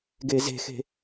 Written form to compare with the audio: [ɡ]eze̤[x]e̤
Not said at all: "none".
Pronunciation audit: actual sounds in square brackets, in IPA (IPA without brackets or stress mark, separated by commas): ɡ, x